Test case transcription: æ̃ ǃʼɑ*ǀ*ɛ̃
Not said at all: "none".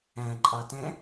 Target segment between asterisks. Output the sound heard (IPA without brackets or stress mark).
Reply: t